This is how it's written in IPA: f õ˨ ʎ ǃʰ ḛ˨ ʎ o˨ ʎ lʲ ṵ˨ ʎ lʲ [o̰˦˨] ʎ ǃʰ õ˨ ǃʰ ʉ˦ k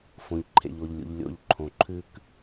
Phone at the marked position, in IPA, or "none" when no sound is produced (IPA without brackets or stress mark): o̰˦˨